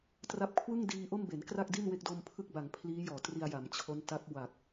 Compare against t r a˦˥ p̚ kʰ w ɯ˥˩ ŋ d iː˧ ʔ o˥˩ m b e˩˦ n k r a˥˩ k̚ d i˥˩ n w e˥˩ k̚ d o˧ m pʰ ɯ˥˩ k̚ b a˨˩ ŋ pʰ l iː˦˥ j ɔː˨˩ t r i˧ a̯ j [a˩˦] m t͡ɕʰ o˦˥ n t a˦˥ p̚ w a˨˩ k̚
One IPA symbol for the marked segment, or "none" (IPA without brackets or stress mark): a˩˦